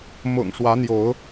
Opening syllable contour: low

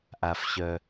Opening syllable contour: low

